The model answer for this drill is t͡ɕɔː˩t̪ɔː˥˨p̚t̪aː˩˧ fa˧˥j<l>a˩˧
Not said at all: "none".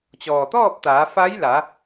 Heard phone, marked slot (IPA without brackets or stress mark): l